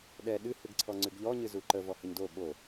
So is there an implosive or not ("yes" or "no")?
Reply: yes